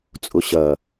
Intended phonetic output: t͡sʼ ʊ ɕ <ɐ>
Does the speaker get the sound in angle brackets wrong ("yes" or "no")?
no